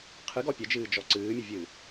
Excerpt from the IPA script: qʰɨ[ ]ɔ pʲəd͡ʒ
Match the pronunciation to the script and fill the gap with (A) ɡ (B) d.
A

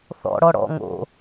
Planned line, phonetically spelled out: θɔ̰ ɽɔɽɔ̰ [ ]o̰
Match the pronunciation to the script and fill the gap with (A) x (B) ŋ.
B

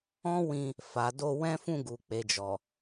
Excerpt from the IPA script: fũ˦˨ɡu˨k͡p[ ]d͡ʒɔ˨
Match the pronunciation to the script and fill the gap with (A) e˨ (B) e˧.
A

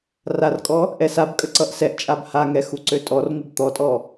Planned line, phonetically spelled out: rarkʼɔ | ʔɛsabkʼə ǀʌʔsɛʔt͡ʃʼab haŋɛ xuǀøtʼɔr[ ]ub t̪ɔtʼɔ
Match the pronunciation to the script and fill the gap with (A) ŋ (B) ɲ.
A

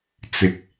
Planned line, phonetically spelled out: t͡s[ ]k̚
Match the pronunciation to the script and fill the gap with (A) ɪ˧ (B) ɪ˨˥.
B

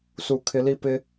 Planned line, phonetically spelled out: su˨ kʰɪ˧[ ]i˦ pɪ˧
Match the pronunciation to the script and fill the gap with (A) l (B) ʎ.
A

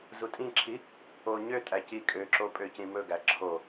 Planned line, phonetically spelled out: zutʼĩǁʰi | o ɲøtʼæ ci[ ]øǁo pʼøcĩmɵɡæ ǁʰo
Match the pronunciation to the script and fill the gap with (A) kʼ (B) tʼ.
A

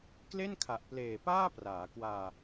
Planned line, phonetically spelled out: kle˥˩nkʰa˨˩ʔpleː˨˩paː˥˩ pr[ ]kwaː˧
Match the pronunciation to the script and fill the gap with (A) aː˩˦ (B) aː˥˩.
A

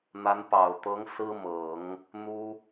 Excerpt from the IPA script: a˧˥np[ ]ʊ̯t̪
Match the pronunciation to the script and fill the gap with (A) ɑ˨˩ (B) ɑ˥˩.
A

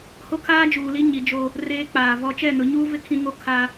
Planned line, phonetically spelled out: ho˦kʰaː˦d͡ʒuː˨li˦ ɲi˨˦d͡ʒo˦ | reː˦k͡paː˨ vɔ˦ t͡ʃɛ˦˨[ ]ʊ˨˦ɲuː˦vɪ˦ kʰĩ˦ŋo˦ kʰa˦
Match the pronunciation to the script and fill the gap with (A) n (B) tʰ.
A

